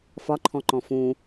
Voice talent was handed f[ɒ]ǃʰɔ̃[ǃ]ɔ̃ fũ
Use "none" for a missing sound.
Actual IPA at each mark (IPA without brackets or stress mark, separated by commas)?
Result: ɒ, ǃ